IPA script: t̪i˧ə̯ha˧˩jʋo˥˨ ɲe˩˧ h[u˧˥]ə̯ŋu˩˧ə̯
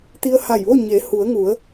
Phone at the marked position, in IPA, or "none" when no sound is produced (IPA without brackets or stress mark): u˩˧